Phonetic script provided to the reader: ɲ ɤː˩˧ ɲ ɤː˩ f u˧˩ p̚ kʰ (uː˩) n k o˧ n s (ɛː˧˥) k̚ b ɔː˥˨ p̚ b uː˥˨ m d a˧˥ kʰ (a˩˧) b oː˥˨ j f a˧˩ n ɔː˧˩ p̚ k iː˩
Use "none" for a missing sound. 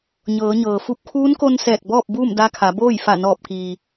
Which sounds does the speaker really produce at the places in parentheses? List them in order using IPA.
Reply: uː˧˥, ɛː˧˩, a˩˧

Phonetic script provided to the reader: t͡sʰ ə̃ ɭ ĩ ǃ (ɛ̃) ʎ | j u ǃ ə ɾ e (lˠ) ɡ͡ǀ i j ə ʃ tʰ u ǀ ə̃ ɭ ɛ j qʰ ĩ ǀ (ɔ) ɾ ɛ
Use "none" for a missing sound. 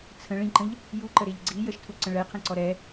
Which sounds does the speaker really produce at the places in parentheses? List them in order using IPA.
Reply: ə̃, ʎ, ɔ

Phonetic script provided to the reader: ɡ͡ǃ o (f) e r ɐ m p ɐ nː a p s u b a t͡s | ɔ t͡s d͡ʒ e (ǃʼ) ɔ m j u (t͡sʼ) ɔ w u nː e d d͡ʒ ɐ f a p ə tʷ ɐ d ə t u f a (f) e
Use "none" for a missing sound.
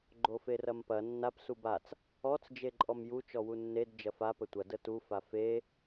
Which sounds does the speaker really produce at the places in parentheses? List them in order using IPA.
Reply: f, ǃʼ, t͡ʃ, f

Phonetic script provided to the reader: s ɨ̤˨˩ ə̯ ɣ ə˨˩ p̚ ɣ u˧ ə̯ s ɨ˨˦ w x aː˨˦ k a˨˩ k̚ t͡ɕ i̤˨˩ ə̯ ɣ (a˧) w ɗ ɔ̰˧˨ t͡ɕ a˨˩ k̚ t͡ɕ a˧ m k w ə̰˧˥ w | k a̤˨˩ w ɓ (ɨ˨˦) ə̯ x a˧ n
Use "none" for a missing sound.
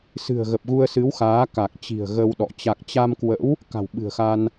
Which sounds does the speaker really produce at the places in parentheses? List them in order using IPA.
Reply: ə˧, ɨ̤˨˩

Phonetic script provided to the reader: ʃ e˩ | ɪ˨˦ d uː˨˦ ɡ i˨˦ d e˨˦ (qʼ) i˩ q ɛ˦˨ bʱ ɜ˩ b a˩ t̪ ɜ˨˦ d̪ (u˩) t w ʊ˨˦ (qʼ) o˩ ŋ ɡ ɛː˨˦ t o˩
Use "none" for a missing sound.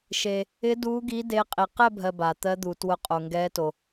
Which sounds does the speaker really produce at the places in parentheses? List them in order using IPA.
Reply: qʼ, u˩, qʼ

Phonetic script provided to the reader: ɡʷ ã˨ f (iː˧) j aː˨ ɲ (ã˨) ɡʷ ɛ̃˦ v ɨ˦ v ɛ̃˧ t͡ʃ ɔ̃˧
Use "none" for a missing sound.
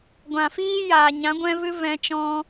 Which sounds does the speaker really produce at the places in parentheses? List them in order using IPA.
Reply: iː˦, ã˨˦

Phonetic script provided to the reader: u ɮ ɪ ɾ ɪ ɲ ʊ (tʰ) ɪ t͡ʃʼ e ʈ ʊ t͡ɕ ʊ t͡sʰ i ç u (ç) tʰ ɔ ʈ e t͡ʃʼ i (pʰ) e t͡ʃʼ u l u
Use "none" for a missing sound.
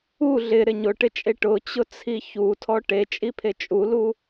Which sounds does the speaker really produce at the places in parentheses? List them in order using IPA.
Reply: ʈ, none, pʰ

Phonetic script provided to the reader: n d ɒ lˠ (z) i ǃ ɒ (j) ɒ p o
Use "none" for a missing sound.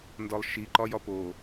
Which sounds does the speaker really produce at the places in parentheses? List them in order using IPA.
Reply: ʃ, j

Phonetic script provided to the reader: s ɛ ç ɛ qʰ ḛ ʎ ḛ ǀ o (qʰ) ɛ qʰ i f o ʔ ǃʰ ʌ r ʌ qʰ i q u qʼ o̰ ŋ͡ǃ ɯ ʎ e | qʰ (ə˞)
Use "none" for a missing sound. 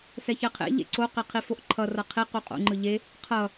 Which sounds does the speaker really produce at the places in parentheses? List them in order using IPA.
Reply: q, ʌ

